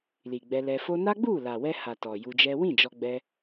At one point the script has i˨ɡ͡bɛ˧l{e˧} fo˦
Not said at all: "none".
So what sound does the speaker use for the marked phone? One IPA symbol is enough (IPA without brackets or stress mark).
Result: ɛ˧